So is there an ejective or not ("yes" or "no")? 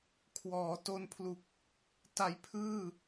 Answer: no